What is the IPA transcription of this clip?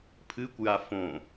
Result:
pʰ ɨ kʷ j a f õ

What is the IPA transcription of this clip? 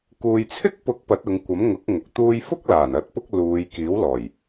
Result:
k uː˨ j t͡sʰ ɪ˥ k̚ p ʊ˨˥ k̚ p ɐ˨˥ t̚ ʊ˨˧ ŋ kʷ ɐ˨˥ m ŋ ʊ˨˥ k̚ ŋ ʊ˨ k̚ t̪ uː˥ j f ʊ˥ k̚ l aː˨˩ n ɐ˨˥ t̚ p ʊ˥ k̚ l uː˨˧ j k iː˨˥ w l ɔː˨˩ j

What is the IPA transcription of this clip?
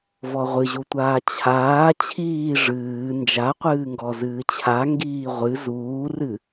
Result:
v ɔ ʁʷ ɨ ʑ u tʷ aː t͡ɕʰ aː t͡ɕʰ iː ʐ ɨː n d͡ʒ a qʷ ɨː ŋ ɡ ɔ z ɨː t͡ɕʰ a ŋ ɡ iː ʁʷ ɨ z uː r ɨ

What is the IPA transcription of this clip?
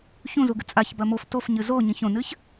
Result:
ç ũ z u ɡ ɨ t͡sʼ a ç b ɐ m o f t o f ɲ ɨ z o ɲ ĩ ç õ n ɨ ç

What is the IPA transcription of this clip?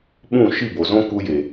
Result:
ɓ ũ˦˨ ʃ i˦˨ b o˨ z õ˦ k u˧ j e˨

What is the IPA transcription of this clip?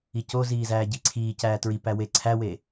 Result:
i c o z iː z æː ɟ i ǀʰ iː c æː t ɹ i p æ w e ǀʰ æ w e

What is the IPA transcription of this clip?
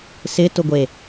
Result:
s ɪ t ʊ ɡʷ e

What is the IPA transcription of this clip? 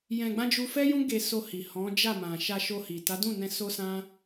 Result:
j ɛ̃˧ ɡ͡b ã˦ d͡ʒ u˧ f ɛ˦ j ũ˦ ɡ e˧ s o˧ h i˨ h ɔ̃˨˦ d͡ʒ a˦˨ m ã˨ ʃ a˧ ʃ o˧ h i˨ t a˨˦ d ũ˦˨ n ɛ̃˧ s o˦ s ã˦

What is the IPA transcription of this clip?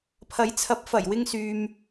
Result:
pʰ ɐ˨˥ j t͡sʰ ɐ˨˥ p̚ f ɐ˨˩ j w ɪ˧ ŋ s yː˨ m

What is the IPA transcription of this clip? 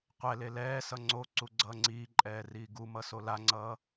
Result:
qʷ ɛ l e l ɛː s ʌ ŋ͡ǀ o ǀ u ɡ͡ǀ ʌː ŋ͡ǀ iː ǃʼ ɛː r iː ɡ u m ʌ s o l a ŋ͡ǀ ʌː

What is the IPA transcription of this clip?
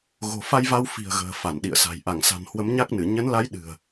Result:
ɣ o̤˨˩ f a˧ j v a˧ w f i̤˨˩ ə̯ ɣ ə̤ː˨˩ f a˧˩ n ɗ ḭ˧˨ ə̯ s a̤˨˩ j ʔ a˧˩ ŋ s a̤˨˩ n h w ə˨˦ m ɲ a˦˥ k̚ n ɨ˧˩ ɲ ə˨˦ n l a˨˦ j ɗ ɨ̤˨˩ ə̯

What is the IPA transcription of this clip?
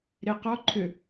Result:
ɾ e q ɔ ǃʰ ʏ

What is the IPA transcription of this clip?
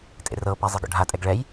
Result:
tʼ ḛ r ɤ p a zˤ e ɡ ɔ̰ ɖʱ a tʼ ɛ ɡ ɭ ɛ j

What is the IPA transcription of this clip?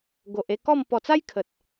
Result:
ɡ o˨ ʔ e˥˧ k ɔ˥˧ m p ɔ˨˩ t͡s a˦ j kʰ ə˨ t̚

